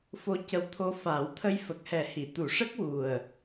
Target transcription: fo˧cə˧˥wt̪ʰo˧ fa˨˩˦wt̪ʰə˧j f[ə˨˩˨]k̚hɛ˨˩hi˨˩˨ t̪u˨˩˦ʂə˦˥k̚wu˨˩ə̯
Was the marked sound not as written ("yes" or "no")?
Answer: yes